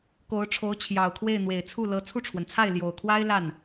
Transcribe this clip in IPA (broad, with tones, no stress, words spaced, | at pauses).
ko˧˥ʊ̯ʈ͡ʂʰo˧˥ʊ̯t͡ɕʰjɑ˨˩ʊ̯kʰwe˥˩ɪ̯ n̪we˨˩ɪ̯t͡sʰu˥˩lɤ˧˥ t͡sʰu˥˩ʈ͡ʂʰwə˩nt͡sʰa˥˩ɪ̯ ljo˨˩ʊ̯kʰwa˥ɪ̯ la˥˩n